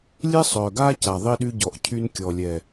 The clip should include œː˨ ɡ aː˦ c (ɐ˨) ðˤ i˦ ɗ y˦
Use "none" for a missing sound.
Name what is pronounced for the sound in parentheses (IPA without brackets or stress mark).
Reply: a˨